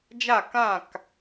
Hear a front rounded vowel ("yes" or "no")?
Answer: no